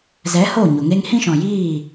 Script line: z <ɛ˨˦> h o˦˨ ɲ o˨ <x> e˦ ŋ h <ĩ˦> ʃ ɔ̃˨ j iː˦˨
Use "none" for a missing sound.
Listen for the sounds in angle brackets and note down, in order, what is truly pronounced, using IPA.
ɛ˨˦, ŋ, ĩ˦

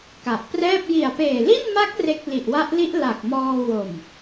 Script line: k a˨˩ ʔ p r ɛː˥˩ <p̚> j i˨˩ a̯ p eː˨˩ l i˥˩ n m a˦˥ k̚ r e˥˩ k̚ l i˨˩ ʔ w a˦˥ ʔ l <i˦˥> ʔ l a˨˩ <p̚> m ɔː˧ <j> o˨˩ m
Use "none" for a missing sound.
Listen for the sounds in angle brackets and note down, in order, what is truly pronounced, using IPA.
p̚, i˦˥, k̚, w

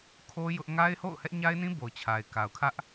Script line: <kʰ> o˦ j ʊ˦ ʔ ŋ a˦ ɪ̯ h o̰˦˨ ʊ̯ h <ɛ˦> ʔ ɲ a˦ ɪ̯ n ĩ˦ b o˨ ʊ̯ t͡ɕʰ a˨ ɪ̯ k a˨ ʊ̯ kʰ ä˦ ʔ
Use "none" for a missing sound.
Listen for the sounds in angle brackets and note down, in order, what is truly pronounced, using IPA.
kʰ, ɛ˦

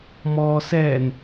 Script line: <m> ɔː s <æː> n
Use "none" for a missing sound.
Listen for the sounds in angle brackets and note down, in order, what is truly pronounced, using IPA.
m, ɛː

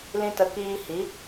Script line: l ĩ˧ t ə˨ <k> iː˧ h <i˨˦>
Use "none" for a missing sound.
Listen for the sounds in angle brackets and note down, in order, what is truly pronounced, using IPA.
k, i˨˦

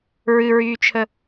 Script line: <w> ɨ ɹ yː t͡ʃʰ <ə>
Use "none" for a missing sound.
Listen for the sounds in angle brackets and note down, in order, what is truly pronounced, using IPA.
ɹ, ə

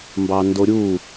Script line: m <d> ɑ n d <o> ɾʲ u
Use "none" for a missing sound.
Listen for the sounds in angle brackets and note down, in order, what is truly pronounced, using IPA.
b, o

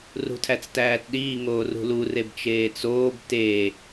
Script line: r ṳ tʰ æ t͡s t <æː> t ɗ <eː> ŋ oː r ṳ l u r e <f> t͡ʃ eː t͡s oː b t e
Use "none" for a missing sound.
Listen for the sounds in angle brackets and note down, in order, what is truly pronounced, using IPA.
æː, iː, b

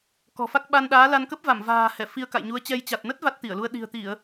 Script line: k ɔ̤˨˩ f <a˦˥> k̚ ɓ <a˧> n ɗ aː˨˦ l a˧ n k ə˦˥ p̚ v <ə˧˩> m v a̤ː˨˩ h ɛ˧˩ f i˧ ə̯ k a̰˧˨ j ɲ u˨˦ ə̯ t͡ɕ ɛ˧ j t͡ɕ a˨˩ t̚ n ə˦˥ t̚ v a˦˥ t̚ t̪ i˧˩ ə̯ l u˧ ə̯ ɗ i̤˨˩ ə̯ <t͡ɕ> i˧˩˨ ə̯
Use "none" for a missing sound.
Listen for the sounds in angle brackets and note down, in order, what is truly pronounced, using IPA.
a˦˥, a˧, a˧˩, t̪

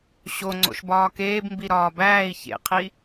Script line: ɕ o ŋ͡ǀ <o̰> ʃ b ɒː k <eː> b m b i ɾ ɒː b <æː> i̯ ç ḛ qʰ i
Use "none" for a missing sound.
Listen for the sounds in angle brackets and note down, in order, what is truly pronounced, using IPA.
o̰, eː, æː

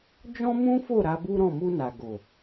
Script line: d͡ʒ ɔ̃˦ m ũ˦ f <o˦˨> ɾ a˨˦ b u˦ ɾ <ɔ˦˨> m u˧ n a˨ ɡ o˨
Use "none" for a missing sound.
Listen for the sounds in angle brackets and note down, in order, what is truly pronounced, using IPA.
o˦˨, ɔ̃˦˨

